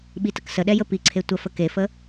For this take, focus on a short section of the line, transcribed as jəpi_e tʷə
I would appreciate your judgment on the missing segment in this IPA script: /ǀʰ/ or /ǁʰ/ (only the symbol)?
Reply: ǀʰ